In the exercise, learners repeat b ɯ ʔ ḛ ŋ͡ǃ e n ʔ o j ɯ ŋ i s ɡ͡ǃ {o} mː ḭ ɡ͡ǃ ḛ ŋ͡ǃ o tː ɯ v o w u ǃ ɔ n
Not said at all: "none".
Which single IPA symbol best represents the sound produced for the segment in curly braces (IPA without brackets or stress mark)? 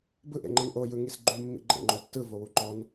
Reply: u